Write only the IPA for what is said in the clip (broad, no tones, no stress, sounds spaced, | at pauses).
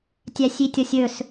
tʲ æ sʲ i tʲ ɔ sʲ ɵ s